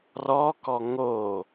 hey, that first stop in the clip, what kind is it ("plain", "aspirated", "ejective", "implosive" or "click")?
plain